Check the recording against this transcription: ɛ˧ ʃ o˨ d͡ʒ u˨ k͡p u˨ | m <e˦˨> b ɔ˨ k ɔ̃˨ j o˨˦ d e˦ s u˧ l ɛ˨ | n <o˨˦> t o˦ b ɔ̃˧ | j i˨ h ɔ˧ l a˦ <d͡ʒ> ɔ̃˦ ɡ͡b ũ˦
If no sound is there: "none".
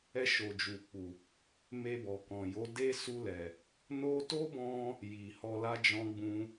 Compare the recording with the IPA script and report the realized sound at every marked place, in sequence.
e˧, o˧, d͡ʒ

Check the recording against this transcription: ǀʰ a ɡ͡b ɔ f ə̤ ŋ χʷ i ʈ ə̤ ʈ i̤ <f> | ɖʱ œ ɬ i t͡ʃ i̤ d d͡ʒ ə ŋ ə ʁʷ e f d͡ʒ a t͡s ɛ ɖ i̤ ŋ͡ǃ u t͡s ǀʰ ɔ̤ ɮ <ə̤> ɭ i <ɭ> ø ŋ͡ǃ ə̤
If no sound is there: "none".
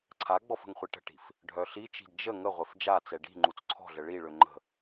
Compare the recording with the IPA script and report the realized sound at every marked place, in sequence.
f, ə, ɭ

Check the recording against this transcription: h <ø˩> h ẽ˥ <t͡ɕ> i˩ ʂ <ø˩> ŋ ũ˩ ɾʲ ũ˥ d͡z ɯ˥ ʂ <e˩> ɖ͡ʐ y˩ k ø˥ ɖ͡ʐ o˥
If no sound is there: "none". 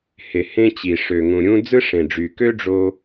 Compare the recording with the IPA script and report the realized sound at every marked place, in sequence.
e˩, t͡ɕ, ø˩, ẽ˩

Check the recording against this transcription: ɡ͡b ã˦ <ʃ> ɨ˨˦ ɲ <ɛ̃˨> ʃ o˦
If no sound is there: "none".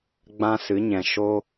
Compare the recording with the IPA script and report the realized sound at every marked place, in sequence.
s, ɛ̃˨

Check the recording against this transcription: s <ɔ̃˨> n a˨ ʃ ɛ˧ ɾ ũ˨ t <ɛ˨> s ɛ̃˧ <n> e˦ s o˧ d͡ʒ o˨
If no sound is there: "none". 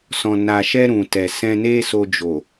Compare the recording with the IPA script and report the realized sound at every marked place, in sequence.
ɔ̃˨, ɛ˨, n

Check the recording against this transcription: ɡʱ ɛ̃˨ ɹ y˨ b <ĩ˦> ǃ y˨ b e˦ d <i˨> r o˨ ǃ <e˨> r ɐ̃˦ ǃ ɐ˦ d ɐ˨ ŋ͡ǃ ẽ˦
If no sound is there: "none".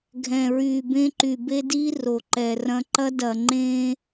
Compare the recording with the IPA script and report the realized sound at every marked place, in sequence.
ẽ˦, i˦, ɛ˨

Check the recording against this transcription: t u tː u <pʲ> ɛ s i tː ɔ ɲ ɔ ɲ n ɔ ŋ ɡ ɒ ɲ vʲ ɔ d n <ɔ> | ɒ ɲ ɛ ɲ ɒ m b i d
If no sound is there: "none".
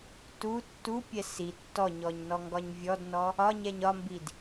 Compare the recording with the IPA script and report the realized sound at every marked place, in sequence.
pʲ, ɔ

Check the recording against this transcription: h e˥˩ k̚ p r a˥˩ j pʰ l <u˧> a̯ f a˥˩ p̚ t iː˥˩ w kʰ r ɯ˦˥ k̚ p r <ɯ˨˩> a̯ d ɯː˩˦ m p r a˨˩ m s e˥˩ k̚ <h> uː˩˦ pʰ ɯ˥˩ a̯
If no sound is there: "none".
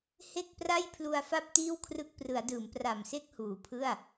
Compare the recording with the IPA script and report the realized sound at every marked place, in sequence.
u˧, ɯ˩˦, h

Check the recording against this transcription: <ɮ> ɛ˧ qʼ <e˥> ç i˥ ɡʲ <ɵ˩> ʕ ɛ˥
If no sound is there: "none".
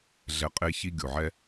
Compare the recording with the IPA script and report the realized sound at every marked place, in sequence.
ɮ, e˥, o˩

